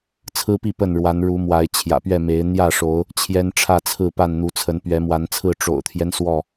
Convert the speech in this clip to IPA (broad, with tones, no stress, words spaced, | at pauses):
t͡sʰɹ̩˦pi˥˨ pə˥˨nɻwa˨˦n ɻu˨˦mwa˨˦ɪ̯ t͡ɕʰjä̰˨˩pɥɛ˥˨ me˨˦ɪ̯ n̪jä˥˨ʂo˨˦ʊ̯ | t͡ɕʰjɛ˦nʈ͡ʂʰä˥˨t͡sʰɹ̩˥˨pa˥˨n n̪u˨˦t͡sʰə˨˦n pɥɛ˨˦mwa˨˦nt͡sʰɹ̩˥˨ ʈ͡ʂo̰˨˩ʊ̯t̪ʰjɛ˦n swɔ˥˨